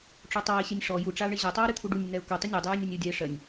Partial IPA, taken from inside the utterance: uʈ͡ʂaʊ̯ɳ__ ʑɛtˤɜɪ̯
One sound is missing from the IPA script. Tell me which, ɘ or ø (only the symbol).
ɘ